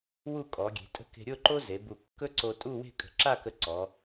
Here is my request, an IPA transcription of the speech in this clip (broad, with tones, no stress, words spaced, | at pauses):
wu˥˧kʼɔ˩˧ɡʲe̤˩˧ tʼə̤˥ke̤˧ ɾʲo˥˧ ǃo˥ze˩˧bu˧˩ kːɵ˥ǀo˧tʼu˥˧ we̤˥˧kʼə̤˧˩ǁa˥˧kə˧ ǀɔ˩˧